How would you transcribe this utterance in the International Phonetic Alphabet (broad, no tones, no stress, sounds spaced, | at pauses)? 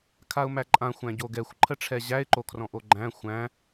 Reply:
kʰ a ʊ̯ m æ ǃʼ ã xʷ æ̃ ɟ o ɡ ɛ xʷ ǃʰ ə ʈ͡ʂʰ ɛ ʑ æ ɪ̯ ǃ o kʰ r ɔ̃ ʔ o ɡ͡ǃ æ̃ xʷ æ̃